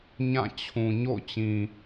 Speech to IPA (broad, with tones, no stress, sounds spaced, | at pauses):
ɲ ã˦˨ t͡ɕʰ ũ˨ ɲ o̰˦˨ ʊ̯ t͡ɕ ĩ˨